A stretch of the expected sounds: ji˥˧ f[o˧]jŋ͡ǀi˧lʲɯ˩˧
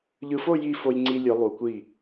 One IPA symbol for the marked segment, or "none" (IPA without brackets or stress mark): o˧